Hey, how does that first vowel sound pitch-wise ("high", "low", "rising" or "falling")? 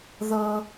high